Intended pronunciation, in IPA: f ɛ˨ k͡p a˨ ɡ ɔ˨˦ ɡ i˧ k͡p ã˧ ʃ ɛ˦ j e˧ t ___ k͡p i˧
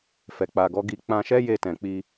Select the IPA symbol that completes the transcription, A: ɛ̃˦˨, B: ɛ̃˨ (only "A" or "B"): B